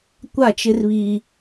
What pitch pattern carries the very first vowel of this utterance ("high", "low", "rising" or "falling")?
falling